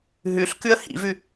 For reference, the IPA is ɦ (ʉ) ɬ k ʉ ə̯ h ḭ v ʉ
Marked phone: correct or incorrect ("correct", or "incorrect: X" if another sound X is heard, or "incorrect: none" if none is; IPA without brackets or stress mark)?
correct